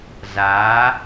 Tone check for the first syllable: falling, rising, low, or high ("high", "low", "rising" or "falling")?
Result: rising